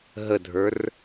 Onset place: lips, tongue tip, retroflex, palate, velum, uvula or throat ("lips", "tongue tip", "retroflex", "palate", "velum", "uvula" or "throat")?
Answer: throat